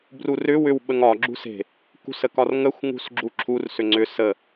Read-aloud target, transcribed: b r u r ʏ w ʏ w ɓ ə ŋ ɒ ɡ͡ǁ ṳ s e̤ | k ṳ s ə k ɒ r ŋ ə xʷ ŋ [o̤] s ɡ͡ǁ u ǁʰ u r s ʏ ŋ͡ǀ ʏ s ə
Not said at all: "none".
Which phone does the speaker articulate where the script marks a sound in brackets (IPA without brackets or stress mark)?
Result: ṳ